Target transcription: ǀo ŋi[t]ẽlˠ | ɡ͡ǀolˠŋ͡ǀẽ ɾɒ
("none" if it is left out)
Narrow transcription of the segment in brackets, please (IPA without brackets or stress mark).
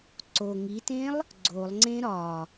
t